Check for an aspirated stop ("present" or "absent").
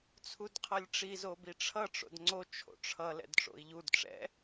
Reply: present